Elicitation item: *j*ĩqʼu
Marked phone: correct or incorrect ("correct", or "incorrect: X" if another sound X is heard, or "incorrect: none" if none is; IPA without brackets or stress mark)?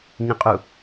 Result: incorrect: ɲ